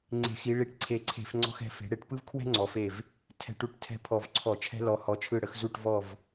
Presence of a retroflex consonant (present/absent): present